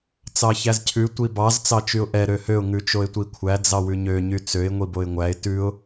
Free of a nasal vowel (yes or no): yes